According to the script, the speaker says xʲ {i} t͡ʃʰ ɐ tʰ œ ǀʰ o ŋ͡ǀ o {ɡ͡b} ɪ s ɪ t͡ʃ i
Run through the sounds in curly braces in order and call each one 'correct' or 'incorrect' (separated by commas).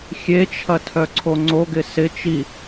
incorrect, incorrect